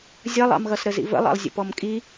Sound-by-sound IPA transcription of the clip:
zʲʌlˠɑ̰mɣʌsɾə zḭvə̰lˠɑ̰lˠzʲə̰ pɔmkʼi

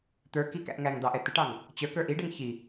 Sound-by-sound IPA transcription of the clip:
t̪ə˞ kikæ̰ʔ ŋæŋd̪ɑʔɛ t̪ɪʈɑŋ | t͡ɕə˞kə˞ ʔiɖɛŋ çi

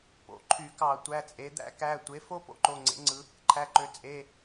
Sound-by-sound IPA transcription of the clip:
po̰˩˧˩ǃʰy˧˩˧kɑ˧˩˧ tʷæ˩˧˩t͡sʼe˩˧d̪æ̰˥ kæ˩˧˩tʷe˩˥fo˥ po̰˥ǃo˩˧˩ŋ͡ǀḛ˩˥ŋ͡ǀɯ˩˧ | ǃʰæ˩˧˩ǃø˩˧ t͡sʼe˩˧˩

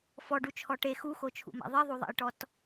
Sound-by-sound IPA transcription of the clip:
fɔɖut͡ʃʰɔ ʈe xuxot͡ʃʰṵma̰ ðˤiðˤuðˤa̰jʈɔt

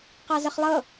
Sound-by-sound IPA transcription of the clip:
qɑzəχlˠɤ

